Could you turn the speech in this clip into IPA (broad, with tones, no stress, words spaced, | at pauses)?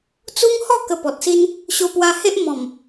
t͡su˦ŋhɔ˥˧ kə˧pɔ˨t̚si˦n | ɕo˦pwa˦ he˦ʔ mɔ̃˨˩m